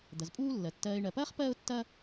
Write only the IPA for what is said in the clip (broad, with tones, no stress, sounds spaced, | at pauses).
d̪ ɐ˨ z pʼ uː˥ lː ɜ˩ tː ɜː˨ ɪ̯ ɳ ɜ˩ p ɐː˥ χ p ɜː˥ ʊ̯ tː ɐː˥